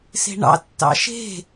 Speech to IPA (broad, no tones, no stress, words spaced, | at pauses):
se̤ɳɑ̰ tːɑ̰ʃe̤